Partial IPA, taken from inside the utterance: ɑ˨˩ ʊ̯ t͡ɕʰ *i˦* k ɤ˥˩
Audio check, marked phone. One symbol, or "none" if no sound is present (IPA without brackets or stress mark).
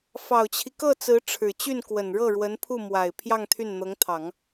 i˦